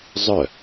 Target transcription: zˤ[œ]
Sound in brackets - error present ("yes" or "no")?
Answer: no